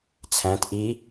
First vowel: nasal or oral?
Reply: nasal